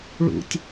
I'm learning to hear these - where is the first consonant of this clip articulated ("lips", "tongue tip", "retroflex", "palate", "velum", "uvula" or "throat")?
retroflex